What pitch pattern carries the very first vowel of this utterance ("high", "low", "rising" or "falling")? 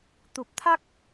low